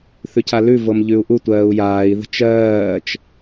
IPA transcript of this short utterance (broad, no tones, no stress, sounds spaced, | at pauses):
θ ʉ cʰ a l ʉ v ɤ m ʎ ʉ u̯ ʔ u tʷ ɜː u̯ j aː i̯ ð ə̤ t͡ʃ ɜː t͡ʃ